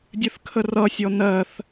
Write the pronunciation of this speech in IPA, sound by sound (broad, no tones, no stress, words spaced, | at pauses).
dʲɨθkʰərʌsʲɔ nɜθ